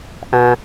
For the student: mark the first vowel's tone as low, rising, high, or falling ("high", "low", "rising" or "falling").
low